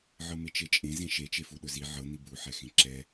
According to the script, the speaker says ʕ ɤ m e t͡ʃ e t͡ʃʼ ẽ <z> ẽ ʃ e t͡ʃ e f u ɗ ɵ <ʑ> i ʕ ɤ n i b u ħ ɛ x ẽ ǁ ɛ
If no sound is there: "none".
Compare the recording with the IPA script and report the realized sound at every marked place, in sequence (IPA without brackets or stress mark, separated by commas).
z, z